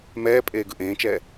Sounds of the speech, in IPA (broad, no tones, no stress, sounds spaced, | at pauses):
m ɛː pʼ eː ɡ ɯ ʔ ẽː t͡ʃ ɛː